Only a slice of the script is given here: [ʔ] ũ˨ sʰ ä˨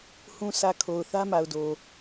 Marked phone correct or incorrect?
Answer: incorrect: h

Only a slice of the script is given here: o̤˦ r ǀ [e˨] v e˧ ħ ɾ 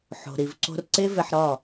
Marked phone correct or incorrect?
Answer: incorrect: e˦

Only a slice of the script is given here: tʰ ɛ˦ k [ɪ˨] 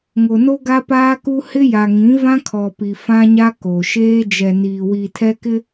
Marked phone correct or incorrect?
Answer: incorrect: ɪ˦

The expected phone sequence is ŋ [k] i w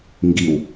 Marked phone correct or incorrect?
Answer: incorrect: ɡ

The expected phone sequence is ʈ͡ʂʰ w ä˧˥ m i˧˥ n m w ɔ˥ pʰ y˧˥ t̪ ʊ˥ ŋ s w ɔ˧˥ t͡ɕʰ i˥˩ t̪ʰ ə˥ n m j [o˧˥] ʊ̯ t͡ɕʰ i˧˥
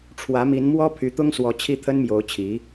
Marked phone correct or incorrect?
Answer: correct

